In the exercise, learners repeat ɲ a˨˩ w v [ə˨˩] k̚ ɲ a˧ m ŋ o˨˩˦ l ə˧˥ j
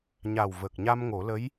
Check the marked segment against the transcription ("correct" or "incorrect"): correct